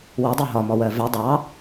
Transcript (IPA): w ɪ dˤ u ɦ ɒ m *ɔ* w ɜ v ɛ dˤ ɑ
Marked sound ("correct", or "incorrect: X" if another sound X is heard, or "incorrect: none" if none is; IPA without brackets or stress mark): correct